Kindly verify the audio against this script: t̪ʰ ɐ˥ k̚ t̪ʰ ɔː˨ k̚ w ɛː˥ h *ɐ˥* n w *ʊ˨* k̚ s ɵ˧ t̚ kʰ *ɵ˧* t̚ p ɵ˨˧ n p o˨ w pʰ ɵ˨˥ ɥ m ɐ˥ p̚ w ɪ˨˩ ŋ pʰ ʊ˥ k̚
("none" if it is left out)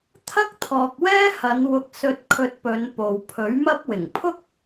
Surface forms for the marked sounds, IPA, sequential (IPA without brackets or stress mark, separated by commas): ɐ˨˧, ʊ˧, ɵ˧